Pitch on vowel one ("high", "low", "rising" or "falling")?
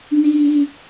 high